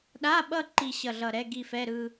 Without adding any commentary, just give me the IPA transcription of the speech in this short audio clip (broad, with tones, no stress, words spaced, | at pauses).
ɗa˧˥˧ɓʌ˥˧ ǃi˥˧ ɕʌ˧˩ɮʌ˧˩ɾɛ˧˥˧ ɡi˥˧fɛ˧˥˧ɾɯ˥˧